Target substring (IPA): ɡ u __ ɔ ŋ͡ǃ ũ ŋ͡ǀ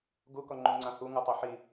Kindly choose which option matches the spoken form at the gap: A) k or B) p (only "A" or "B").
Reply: A